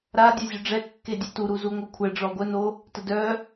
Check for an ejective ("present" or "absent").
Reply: absent